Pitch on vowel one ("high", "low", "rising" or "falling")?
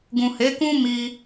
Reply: low